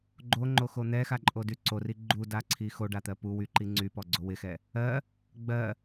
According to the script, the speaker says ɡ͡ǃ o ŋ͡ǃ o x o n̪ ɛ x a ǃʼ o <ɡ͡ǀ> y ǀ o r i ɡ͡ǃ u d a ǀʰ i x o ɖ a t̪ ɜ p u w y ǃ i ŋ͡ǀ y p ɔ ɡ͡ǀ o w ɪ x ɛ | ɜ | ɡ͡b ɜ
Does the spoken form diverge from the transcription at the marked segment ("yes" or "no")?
yes